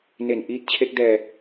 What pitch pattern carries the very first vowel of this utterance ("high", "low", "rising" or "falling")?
low